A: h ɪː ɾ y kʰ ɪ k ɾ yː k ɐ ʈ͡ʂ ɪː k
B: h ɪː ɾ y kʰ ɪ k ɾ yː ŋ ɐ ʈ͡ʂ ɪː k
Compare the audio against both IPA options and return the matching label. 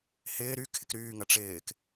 B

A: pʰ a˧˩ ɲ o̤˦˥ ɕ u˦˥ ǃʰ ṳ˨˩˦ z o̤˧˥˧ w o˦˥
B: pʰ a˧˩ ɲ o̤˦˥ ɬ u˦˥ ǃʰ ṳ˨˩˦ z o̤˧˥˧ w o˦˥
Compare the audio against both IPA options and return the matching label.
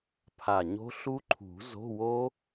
B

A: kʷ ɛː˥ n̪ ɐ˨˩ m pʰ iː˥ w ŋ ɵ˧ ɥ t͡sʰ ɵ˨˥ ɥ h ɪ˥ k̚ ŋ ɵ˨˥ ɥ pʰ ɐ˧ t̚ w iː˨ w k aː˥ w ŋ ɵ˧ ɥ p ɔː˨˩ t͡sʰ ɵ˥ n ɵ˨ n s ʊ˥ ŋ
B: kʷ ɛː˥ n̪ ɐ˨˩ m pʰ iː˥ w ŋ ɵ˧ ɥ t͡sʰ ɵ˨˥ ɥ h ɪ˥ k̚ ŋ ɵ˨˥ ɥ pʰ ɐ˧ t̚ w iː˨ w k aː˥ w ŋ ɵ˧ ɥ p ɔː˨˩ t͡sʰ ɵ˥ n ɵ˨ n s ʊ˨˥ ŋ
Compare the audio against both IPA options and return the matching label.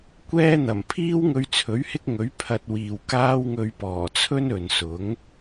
B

